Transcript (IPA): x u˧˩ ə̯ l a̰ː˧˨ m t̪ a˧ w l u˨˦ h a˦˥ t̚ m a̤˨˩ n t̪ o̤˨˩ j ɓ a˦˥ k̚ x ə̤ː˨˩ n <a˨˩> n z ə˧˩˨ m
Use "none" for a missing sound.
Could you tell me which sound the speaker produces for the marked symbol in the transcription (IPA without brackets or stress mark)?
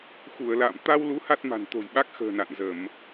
a̰˧˨